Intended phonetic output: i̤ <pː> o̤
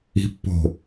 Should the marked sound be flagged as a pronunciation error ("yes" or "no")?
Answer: no